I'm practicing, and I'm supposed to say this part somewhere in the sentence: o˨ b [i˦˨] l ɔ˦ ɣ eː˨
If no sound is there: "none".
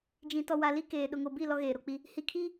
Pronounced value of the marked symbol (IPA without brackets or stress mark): i˦˨